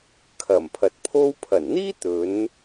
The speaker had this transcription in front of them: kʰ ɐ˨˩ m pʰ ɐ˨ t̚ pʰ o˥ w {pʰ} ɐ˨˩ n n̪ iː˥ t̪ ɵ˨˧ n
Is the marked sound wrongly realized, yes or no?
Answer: no